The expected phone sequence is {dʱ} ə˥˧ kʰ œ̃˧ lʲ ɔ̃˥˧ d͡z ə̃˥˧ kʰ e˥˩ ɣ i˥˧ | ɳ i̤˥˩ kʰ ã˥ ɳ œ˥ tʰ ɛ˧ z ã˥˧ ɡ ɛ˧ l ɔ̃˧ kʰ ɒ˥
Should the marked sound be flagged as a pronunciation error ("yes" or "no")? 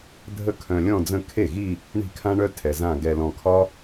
no